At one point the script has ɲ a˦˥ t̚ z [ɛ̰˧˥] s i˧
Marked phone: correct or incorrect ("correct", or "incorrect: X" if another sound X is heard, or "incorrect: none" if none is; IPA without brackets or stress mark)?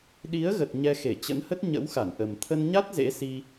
incorrect: ḛ˧˥